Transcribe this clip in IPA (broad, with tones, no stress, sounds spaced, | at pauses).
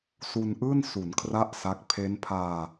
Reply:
s u˧ n ʔ ɯː˥˩ n s u˩˦ n kʰ r a˥˩ ʔ s a˦˥ k̚ pʰ e˦˥ n pʰ aː˧